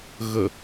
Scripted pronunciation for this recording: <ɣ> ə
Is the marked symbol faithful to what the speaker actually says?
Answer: yes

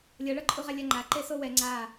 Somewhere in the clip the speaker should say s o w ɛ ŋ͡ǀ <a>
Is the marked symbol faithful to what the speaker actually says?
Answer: yes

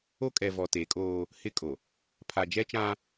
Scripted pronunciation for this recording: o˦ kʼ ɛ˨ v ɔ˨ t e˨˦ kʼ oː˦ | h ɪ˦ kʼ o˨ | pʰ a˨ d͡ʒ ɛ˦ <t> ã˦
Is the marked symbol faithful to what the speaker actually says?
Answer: no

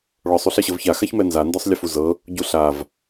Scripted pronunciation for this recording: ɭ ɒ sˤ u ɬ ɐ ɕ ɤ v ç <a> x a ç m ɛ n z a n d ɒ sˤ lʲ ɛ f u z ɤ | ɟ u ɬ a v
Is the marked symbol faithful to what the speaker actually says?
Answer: yes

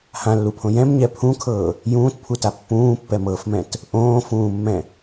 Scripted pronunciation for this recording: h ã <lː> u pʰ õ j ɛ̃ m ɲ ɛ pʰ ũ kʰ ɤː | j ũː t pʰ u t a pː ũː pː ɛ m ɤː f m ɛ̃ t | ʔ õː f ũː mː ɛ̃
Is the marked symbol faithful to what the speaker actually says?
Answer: yes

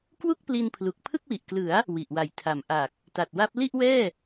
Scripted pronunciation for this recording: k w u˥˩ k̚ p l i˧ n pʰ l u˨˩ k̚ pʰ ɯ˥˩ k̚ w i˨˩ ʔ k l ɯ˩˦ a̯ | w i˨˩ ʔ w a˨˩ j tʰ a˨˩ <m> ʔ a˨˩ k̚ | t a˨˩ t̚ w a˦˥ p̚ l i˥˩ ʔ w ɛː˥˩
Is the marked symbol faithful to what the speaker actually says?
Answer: yes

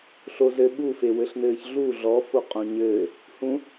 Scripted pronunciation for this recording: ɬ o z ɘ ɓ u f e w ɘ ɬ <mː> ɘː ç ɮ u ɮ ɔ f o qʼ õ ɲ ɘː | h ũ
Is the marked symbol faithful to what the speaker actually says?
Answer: no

